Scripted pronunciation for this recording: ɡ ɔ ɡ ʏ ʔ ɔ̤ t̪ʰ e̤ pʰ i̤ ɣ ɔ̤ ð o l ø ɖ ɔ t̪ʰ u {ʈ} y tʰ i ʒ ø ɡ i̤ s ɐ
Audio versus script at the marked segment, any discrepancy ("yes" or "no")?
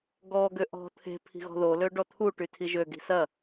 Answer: no